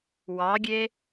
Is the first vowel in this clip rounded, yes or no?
no